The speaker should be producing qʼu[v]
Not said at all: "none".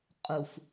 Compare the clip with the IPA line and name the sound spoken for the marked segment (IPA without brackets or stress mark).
f